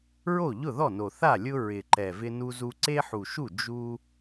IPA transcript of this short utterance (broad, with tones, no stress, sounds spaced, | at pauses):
ɹ o˥˩ ʎ ʊ˥˩ ð ɔ˥˩ n o˨˩ θ a˥˩ lʲ ʊ˦ ɹ ɪ˨˩ ǃ ɛ˨˩ v ɪ˦ n u˦ z u˦ ǀ e˦ ħ u˨˩ ʃ u˥˩ d͡ʒ u˦